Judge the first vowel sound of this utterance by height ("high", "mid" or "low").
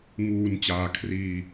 high